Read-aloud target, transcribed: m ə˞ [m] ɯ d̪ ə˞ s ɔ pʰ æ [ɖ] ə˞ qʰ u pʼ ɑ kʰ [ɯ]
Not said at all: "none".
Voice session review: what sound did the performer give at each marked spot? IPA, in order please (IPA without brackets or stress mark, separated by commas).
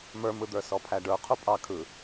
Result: m, ɖ, ɯ